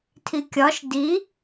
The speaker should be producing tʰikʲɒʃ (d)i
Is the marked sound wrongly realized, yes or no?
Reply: no